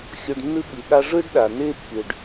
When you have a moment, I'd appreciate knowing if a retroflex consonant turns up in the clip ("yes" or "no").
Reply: yes